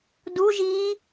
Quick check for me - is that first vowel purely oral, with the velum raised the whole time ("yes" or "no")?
yes